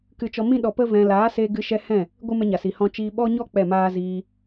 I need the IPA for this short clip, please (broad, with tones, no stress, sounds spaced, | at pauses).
k ɨ˧ t͡ʃ ɔ˧ m ĩ˦ ɗ ɔ˧ p ə˦ v ɛ̃˧ l aː˨˦ s e˧ ɡ ɨ˧ ʃ ɛ˧ h ɛ̃˦˨ | ɡʷ ɨ˦ m ɛ˧ ɲ a˨ s i˨ h ɔ̃˧ t͡ʃ iː˧ ɓ ɔ˦ ɲ ɔ˦ k͡p ɛ˦˨ m aː˦ z iː˧